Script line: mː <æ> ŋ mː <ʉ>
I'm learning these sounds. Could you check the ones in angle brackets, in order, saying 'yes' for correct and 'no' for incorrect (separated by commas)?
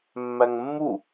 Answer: yes, no